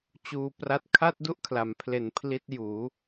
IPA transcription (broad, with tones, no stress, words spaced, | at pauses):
t͡ɕuː˧pra˦˥t̚ kʰa˥˩t̚du˥˩ʔkʰla˩˦mpʰle˨˩n pʰli˦˥t̚juː˩˦